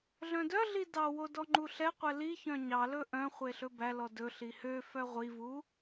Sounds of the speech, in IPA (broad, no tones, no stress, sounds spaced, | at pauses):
ɮ œ̃ d œ ɮ i d ɑ w o d ɔ ŋ͡ǃ u ɬ ɛ qʷ ɛ l i ç œ̃ ɲ ɑ l ɵ ʔ œ̃ χʷ e ɬ ɵ b æ l ɔ d ɵ ɬ i h ø f œ ʁʷ i v u